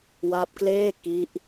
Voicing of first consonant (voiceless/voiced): voiced